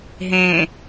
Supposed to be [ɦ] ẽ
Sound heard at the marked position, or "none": ɦ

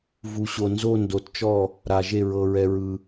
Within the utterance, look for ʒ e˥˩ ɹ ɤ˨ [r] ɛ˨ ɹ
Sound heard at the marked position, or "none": ɹ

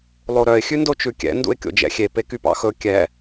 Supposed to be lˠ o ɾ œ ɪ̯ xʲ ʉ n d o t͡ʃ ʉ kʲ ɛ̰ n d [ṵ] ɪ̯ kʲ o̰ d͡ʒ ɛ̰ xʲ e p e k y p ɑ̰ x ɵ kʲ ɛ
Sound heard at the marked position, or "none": ṵ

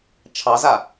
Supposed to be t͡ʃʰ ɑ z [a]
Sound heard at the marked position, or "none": a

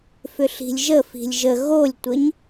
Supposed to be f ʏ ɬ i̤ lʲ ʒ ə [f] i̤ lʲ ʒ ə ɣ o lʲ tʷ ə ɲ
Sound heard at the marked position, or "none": f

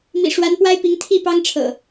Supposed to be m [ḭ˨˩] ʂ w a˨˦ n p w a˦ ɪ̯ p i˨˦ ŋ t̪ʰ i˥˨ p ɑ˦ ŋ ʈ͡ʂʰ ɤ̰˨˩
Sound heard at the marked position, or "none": ḭ˨˩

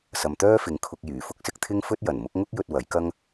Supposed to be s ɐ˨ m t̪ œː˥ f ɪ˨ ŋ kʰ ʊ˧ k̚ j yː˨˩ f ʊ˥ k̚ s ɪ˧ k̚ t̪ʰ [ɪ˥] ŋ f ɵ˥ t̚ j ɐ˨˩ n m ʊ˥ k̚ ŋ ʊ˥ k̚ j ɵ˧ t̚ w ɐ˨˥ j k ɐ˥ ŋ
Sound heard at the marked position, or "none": ɪ˥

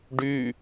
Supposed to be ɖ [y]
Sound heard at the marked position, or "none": y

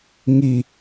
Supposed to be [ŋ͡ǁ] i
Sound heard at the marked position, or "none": ŋ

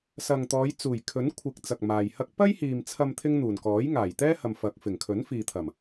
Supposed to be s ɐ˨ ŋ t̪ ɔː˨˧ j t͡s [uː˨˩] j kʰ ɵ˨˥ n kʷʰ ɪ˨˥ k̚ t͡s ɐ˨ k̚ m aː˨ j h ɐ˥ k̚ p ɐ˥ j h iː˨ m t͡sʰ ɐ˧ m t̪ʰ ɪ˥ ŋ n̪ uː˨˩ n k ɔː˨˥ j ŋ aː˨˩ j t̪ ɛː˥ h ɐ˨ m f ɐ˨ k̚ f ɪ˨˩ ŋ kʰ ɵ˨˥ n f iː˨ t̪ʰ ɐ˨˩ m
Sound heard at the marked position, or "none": uː˨˩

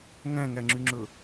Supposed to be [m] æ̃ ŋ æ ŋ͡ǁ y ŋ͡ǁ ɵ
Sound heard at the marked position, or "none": ŋ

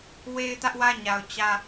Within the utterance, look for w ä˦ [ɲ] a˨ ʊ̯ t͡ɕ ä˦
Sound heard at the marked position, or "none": ɲ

